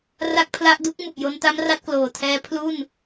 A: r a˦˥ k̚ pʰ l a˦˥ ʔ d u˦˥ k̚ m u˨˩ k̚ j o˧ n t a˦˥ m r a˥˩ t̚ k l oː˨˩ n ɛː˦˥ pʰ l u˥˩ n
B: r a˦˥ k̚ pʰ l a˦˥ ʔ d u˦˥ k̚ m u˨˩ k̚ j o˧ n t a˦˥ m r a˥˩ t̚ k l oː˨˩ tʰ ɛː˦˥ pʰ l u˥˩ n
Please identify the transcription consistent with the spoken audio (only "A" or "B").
B